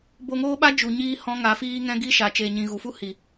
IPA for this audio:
b o˧ ŋ oː˦ ɓ a˦ d͡ʒ u˨ ɲ iː˧ h ɔ̃˧ ŋ a˨˦ f iː˦ ŋ ɛ̃˦ ɡ i˦ ʃ a˨ t͡ʃ eː˨ ɲ ĩ˨ ɣ u˨ f u˦ h i˨

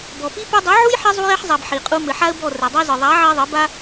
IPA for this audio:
b ɔ˨ p i˦ p ɨ˧ dˤ ɨ˨˦ ʕ u˦ j ħ i˧ zˤ u˧ j ɛ˧ ħ zˤ a˨ b ħ i˨ qʼ u˧ m ɘ˨ ħ a˦ ə̯ b ɔ˦˨ r ɛ˨ dˤ ɛ˦ z ɨ˨ ðˤ a˨˦ ʕ i˧ ðˤ ɘ˨˦ b a˦

